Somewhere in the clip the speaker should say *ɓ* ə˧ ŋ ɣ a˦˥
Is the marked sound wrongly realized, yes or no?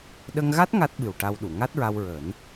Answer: yes